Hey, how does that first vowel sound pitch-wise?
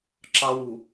high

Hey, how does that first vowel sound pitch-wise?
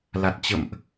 low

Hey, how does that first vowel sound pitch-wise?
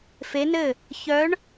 rising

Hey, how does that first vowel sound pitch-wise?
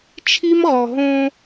high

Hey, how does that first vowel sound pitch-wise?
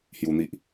high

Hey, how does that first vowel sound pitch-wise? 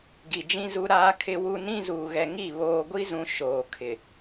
low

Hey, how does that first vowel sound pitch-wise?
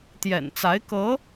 low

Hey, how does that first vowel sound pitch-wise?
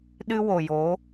high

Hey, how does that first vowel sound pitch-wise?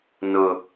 high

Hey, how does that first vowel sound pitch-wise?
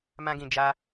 high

